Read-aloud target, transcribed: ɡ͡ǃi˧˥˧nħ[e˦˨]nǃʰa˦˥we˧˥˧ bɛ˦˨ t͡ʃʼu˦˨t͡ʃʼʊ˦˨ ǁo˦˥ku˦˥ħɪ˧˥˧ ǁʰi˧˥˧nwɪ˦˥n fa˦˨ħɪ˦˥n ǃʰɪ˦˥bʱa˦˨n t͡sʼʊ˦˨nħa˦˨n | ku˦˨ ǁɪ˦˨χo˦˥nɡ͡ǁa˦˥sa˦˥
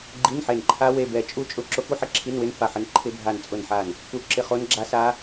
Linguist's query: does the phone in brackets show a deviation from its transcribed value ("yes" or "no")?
no